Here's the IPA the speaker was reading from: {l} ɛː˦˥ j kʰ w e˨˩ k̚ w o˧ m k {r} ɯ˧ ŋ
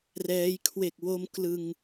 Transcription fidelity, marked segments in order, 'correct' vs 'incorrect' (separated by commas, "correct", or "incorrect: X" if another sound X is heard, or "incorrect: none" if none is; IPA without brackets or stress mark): incorrect: r, incorrect: l